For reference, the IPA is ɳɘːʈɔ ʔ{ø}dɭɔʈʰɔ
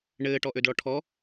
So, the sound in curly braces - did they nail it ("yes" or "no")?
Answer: yes